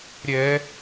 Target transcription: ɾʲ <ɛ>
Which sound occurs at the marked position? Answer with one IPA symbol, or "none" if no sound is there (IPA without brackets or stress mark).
ɛ